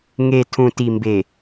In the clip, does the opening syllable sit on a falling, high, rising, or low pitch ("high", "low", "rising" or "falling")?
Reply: low